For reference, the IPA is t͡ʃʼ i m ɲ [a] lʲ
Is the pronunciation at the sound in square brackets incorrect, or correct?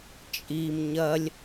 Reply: incorrect